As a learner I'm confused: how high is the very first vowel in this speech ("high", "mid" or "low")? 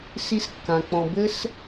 high